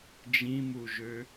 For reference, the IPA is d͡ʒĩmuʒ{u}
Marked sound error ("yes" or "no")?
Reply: yes